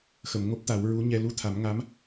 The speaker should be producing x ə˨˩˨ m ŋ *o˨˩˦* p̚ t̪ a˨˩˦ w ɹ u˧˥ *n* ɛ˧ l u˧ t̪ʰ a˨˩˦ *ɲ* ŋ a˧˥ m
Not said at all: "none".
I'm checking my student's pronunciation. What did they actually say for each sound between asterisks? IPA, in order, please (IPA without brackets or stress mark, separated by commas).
o˦˥, ɲ, m